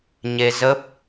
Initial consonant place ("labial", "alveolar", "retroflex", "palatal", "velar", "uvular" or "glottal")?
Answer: palatal